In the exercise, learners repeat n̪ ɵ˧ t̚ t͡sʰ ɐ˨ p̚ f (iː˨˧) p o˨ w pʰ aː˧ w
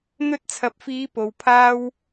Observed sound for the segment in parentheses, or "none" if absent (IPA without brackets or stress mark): iː˨˧